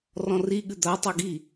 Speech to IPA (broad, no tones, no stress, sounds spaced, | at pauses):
r ɔ̃ r i ɠ ɨ d̪ a tˤ a ɡ i